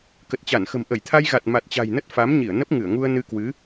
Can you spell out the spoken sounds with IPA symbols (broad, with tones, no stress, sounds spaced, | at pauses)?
k ə˨˩ t̚ t͡ɕ a˧˩ n x ə̤˨˩ m ʔ ə˧˩ j t̪ʰ a˧ j ɣ a˨˩ t̚ m a˨˩ t̚ t͡ɕ a̤˨˩ j n ə˦˥ t̚ f a˨˦ m ɲ i˧˩ ə̯ n ə˦˥ p̚ ŋ ɨ˧˩ ə̯ ŋ u˧ ə̯ n ɨ˧ k w ɨ˨˦